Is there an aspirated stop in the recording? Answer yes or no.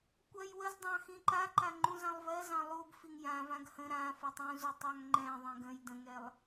no